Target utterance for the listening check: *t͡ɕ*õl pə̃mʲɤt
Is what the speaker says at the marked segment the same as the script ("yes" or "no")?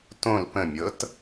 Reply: no